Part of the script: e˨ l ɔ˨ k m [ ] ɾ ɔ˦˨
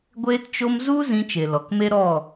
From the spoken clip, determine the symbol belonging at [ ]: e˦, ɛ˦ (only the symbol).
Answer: e˦